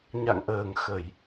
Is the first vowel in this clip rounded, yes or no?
no